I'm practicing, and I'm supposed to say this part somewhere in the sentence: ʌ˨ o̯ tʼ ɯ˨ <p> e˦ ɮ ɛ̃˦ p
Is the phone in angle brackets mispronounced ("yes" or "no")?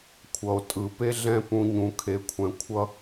no